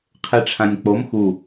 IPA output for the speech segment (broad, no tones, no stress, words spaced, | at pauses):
qʰeʈ͡ʂʰãnʲk͡pom xu